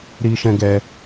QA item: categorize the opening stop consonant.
plain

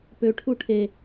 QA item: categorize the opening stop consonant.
plain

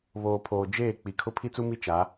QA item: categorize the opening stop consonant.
aspirated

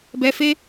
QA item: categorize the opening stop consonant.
plain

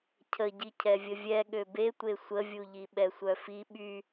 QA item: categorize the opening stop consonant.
aspirated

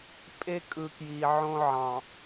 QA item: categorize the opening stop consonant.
ejective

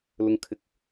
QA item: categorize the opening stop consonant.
aspirated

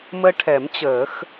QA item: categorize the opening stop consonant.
aspirated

